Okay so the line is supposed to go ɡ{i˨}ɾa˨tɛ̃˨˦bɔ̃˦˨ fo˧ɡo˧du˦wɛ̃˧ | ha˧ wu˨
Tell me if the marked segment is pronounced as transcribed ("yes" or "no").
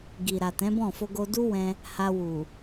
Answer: yes